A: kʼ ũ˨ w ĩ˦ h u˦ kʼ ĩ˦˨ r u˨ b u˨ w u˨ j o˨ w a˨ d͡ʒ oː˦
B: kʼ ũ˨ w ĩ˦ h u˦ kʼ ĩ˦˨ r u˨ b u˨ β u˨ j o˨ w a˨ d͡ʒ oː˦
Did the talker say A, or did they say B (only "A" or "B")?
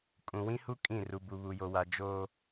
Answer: B